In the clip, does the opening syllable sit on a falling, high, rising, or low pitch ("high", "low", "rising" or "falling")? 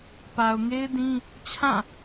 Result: low